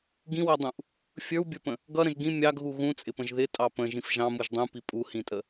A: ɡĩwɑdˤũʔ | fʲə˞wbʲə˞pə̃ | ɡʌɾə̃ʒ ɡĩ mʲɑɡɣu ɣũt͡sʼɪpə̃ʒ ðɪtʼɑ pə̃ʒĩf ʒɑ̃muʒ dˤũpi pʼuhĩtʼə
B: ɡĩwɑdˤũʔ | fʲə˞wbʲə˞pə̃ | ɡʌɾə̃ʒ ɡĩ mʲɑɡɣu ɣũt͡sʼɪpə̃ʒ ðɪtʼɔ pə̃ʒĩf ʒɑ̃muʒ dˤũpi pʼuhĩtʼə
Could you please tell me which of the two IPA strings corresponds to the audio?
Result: A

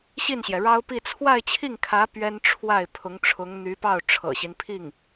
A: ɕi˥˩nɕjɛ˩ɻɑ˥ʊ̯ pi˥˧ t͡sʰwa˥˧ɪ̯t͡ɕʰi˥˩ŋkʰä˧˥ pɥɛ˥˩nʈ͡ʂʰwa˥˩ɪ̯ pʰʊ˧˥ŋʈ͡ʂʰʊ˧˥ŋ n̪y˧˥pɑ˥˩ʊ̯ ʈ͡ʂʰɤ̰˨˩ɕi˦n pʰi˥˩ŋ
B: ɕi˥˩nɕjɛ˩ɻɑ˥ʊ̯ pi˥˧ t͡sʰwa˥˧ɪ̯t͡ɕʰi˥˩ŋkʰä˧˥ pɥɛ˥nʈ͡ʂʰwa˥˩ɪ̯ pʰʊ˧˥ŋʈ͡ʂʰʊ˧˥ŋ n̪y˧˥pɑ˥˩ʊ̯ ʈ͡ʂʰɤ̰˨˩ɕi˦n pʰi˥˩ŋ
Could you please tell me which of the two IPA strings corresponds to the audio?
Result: B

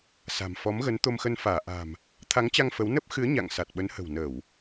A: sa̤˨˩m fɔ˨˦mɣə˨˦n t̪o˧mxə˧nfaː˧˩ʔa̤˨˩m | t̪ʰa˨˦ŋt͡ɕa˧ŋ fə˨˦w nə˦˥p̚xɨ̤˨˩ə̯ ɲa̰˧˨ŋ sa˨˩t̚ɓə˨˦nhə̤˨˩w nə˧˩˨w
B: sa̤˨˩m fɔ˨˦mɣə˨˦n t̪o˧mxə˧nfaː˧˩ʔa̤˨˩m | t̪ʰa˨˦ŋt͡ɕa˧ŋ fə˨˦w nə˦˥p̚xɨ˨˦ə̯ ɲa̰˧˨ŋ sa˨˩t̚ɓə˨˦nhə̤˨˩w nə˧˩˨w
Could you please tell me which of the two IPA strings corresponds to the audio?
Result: B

